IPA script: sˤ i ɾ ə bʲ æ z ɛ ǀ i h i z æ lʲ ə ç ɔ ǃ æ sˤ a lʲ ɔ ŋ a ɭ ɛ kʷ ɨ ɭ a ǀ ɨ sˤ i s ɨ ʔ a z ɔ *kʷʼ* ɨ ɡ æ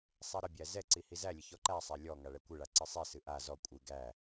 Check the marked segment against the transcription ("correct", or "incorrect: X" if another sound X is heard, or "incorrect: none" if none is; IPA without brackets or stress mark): correct